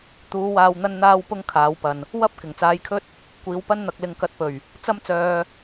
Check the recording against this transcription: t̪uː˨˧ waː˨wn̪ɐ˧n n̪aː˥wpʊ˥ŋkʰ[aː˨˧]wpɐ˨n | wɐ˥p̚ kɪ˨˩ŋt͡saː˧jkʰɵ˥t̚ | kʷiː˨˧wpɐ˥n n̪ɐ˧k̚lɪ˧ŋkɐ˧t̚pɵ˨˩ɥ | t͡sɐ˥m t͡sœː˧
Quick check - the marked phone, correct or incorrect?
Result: correct